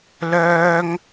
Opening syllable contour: high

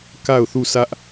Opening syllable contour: falling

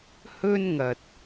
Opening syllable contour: high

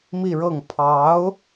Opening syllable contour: falling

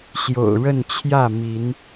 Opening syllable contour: low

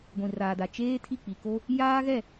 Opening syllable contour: low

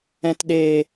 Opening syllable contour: low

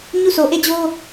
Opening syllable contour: falling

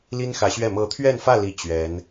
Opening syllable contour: high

